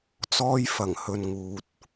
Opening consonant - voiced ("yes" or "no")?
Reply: no